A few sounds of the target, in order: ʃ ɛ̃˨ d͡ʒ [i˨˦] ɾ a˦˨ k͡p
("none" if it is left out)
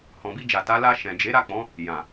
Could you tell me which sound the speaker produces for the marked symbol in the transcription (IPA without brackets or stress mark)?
e˨˦